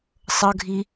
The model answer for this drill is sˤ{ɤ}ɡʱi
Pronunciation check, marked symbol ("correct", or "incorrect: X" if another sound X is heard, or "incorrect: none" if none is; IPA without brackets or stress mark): correct